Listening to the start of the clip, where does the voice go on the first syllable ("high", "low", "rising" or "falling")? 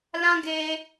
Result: high